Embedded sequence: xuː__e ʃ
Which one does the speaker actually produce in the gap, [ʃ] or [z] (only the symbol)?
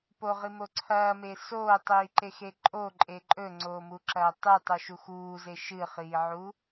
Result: z